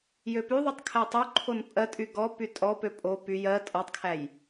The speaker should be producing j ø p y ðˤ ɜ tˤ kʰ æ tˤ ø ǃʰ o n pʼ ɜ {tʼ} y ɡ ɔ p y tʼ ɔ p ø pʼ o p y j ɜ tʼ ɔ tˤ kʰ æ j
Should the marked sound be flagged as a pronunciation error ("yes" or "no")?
no